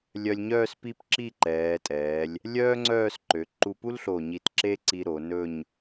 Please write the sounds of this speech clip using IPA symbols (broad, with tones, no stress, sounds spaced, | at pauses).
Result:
lʲ œ˧ lʲ ɲ œː˥˧ s p i˥˧ p ǁ i˥˧ ǃ ɛː˩˧ tʼ ɛː˩˧ lʲ | lʲ œː˥ ŋ͡ǀ œː˥˧ s ǃ ø˩˧ ǃ u˧ p u˥ l ɬ o˧˩ ɲ i˧˩ t ǁ e˥ ǀ i˧ ɾ o˩˧ n ɵ˥˧ ɲ